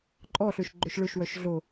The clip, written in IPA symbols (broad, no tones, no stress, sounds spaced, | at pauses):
ǃʼ ɔ ɬ ø ʃ ɡ͡ǃ ɵ ʃ ɭ ɵ ʃ w œ ʃ ɮ o